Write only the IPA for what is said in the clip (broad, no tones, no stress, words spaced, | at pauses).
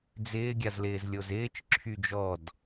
d͡zɪːɡʲazlɪːzlʲoz ɪːt͡ʃǁʰy d͡ʒɔd